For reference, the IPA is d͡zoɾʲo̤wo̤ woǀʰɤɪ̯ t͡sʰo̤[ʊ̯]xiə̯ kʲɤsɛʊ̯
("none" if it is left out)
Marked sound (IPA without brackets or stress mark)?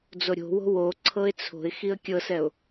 ɪ̯